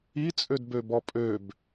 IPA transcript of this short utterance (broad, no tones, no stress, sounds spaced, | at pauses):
i t͡sʼ ø d b ø b ɔ pʼ ø b